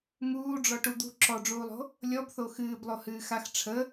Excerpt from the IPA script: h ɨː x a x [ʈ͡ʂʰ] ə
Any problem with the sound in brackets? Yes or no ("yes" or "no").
no